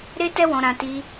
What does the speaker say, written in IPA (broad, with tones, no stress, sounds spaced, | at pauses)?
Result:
ɾ e˦ t ɛ˦ w ɔ̃˧ ɾ ã˧ t i˧